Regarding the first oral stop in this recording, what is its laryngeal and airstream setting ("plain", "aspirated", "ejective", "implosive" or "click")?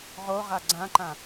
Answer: click